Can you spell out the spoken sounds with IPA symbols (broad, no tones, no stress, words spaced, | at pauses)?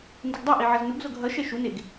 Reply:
ndɯɡdˤɯʔi ʕʌznuɡzoɡ ɦʌʃɛ ʃuneɡ